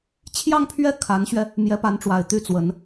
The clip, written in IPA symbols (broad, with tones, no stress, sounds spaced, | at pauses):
t͡ɕʰ j ɑ˥˧ ŋ pʰ ɥ ɛ˥˩ kʰ a˧˥ n ɕ ɥ ɛ˧ | m j ɛ˧˥ p a˧˥ n ʈ͡ʂ w a˨˩ ɪ̯ t̪ y˥˩ t͡s w ə˧˥ n